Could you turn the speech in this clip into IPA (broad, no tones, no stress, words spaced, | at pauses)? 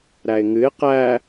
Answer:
ɾæɪ̯ŋɨɪ̯ qæ